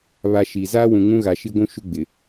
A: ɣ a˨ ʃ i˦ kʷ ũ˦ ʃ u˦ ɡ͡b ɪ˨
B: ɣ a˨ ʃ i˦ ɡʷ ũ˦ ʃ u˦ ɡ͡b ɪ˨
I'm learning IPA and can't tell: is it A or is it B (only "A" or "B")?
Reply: B